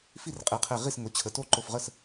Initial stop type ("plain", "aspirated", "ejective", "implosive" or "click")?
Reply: ejective